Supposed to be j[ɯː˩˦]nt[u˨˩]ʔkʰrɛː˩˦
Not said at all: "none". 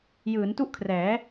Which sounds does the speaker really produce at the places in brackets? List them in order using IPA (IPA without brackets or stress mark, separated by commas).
ɯː˩˦, u˥˩